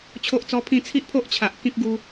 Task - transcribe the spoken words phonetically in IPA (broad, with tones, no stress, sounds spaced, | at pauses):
t͡ɕʰ o˦ ʔ t͡s ɔ˦ pʰ ĩ˥˧ t͡sʰ i˦ ʔ pʰ o˦ ʔ t͡ɕʰ a˨ ʔ k ĩ˦ k̚ ɡ u˦